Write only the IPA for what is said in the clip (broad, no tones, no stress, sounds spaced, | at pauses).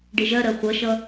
ɖ e ʒ ɜ ɾ ɜ χʷ ʌ ʃ ʌ